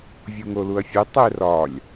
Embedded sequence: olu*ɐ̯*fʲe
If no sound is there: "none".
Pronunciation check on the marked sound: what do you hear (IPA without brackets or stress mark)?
ɐ̯